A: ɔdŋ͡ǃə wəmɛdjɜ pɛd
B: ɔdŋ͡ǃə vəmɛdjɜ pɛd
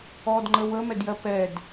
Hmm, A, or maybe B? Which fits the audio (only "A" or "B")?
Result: A